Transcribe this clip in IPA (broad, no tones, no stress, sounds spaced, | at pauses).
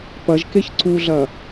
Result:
p ɐ ʒ k e ç ǀ u ɮ ɐ